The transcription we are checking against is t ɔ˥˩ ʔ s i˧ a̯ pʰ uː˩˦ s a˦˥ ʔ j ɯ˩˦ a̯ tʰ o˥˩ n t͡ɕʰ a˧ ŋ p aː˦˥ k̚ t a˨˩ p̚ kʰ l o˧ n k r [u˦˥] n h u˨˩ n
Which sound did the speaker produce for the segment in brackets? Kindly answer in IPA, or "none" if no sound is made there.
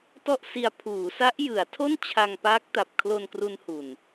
u˧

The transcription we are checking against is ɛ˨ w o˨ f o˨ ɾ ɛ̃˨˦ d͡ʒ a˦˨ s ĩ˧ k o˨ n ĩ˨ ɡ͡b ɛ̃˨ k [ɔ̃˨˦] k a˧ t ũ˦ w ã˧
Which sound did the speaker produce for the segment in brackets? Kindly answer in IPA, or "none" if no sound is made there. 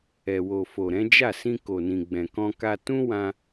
ɔ̃˧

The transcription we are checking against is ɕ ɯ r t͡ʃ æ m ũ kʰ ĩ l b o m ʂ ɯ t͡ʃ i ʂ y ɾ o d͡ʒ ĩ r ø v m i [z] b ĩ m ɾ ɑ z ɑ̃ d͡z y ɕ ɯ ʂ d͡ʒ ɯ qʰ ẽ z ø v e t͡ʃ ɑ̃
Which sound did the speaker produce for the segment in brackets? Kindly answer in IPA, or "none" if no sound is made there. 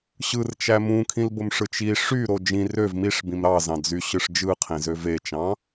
ʂ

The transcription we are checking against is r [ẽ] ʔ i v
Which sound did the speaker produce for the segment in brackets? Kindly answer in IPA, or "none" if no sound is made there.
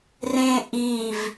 ẽ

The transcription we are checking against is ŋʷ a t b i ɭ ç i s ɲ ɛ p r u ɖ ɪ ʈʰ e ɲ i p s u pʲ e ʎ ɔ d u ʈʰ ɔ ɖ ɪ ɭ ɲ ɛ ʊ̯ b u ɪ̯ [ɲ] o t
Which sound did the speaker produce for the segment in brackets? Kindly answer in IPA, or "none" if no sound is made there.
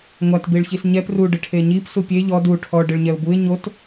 ɲ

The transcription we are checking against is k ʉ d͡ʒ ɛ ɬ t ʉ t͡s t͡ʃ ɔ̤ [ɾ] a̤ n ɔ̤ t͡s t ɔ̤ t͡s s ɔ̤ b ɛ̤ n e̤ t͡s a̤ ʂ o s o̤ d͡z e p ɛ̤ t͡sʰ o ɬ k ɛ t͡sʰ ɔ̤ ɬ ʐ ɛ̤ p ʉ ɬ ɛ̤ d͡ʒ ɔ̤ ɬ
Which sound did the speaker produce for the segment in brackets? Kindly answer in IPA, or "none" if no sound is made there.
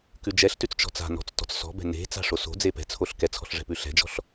t͡s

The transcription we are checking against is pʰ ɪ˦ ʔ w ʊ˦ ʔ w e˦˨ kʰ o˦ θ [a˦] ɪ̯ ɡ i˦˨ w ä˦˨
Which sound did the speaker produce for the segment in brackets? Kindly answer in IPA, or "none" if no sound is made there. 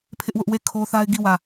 a˦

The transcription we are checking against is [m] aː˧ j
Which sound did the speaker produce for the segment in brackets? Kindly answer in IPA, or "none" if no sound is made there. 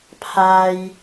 pʰ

